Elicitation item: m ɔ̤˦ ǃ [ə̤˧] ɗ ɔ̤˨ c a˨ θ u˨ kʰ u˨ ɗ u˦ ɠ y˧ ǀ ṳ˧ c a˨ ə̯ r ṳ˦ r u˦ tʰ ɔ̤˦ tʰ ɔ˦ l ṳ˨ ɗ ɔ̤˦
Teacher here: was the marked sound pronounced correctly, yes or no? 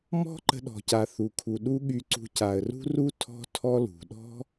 yes